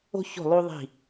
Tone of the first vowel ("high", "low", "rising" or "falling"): high